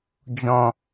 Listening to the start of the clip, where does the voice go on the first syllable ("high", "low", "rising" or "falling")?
low